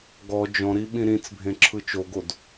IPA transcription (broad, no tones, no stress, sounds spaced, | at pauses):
ɡ ɔ d͡ʒ ɔ̃ ɾ i ɓ ĩ ɾ ĩ t͡s bʱ ẽ ǁʰ ɯ t͡ʃ o ɡ o d